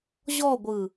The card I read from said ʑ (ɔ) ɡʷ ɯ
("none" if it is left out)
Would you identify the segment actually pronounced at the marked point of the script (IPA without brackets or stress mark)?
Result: ɔ